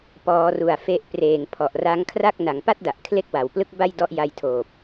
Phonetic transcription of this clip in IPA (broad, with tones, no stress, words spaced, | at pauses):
pɔː˩˦ru˨˩a̯ fe˦˥ʔ preː˨˩ŋ pʰɔ˨˩ʔra˦˥ŋkʰra˥˩k̚ na˩˦ŋpa˥˩t̚da˨˩ʔ kʰle˥˩k̚wa˨˩wplɯ˥˩k̚ba˥˩j dɔ˦˥ʔja˧jtʰoː˨˩p̚